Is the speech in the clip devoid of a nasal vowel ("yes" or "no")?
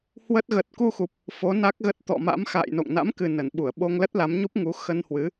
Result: yes